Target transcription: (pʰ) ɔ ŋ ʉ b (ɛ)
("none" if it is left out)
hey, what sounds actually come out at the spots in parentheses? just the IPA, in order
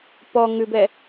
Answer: p, ɛ

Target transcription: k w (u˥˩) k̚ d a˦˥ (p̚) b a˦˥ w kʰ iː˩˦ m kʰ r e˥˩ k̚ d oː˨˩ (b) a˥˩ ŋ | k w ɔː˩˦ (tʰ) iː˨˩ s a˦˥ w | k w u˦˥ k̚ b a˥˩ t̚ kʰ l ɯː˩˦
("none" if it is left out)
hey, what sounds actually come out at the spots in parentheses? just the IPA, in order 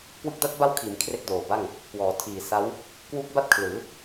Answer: ɯ˥˩, t̚, b, tʰ

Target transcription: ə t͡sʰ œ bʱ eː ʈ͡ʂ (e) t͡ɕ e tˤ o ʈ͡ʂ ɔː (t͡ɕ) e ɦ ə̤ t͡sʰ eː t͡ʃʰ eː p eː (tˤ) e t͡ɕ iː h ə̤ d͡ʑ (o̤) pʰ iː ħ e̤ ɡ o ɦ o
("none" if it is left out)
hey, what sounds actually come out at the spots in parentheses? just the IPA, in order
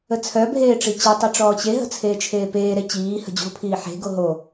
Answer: i, t͡ɕ, ɾ, o̤

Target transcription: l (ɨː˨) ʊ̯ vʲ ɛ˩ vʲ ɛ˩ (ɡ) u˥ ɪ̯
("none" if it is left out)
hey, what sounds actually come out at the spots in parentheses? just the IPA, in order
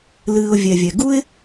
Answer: ɨː˨, ɡ

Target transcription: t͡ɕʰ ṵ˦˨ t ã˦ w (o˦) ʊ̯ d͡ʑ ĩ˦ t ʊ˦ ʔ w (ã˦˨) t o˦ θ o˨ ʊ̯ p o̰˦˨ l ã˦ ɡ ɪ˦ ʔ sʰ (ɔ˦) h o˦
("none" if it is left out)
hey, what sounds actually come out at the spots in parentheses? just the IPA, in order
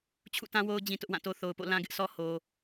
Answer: o˦, ã˦˨, ɔ˦

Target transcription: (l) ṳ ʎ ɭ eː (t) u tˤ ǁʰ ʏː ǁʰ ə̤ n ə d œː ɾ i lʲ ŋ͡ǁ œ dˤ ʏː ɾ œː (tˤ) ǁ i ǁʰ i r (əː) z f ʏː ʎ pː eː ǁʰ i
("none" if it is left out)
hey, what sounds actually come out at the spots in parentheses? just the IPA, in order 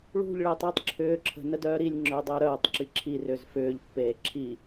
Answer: ɭ, tˤ, tˤ, ʏː

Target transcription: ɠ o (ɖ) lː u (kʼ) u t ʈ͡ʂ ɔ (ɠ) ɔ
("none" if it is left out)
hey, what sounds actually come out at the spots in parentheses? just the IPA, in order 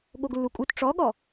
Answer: ɡ, kʼ, ɠ

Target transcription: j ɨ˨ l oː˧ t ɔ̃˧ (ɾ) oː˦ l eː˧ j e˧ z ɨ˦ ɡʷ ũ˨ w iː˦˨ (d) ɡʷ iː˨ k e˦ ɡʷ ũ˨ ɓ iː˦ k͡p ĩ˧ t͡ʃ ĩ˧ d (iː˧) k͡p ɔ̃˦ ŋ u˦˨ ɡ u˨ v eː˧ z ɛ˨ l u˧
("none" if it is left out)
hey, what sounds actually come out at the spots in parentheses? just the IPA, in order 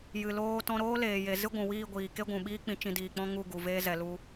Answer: ɾ, none, iː˨

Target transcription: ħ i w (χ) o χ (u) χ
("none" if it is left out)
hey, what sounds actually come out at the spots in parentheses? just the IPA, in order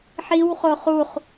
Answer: χ, u

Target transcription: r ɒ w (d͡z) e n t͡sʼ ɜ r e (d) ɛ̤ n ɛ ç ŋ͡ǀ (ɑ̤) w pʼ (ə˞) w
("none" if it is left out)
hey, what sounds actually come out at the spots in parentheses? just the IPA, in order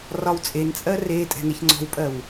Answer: t͡sʼ, tʼ, ɔ̤, ɜ

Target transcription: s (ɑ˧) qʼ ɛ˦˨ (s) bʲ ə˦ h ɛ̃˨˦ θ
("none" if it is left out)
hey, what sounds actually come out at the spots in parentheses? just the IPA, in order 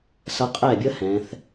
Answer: ʌ˧, none

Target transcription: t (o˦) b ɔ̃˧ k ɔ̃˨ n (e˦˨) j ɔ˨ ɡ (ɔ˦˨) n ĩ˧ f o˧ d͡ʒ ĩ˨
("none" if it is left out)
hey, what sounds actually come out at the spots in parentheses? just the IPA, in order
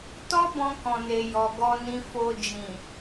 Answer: ɔ˦, e˨, ɔ˧

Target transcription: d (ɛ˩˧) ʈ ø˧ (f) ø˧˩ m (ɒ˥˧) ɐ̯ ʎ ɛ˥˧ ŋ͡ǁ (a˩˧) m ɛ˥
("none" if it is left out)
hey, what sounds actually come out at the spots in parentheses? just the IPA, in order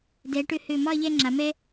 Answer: ɛ˩˧, h, ɒ˥˧, a˩˧

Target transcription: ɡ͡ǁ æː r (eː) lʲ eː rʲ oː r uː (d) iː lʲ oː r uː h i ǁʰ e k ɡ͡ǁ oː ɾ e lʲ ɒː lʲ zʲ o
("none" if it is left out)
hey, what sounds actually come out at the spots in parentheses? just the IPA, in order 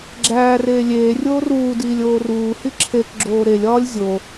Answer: eː, d

